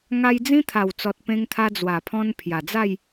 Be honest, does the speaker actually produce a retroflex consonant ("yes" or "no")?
no